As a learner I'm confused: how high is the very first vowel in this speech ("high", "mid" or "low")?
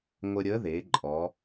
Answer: mid